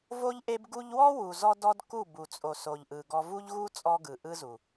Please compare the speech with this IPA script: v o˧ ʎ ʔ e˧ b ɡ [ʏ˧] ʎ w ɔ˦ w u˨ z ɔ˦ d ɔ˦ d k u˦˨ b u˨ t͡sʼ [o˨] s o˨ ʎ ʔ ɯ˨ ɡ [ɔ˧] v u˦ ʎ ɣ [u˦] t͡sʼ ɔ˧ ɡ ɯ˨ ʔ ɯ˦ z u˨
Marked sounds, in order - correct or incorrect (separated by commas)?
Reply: incorrect, correct, correct, correct